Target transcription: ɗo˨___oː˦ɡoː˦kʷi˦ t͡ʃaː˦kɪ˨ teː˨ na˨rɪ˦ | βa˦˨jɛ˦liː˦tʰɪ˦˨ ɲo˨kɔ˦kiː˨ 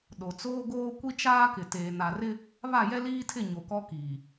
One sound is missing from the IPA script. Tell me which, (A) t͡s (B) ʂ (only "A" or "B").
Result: A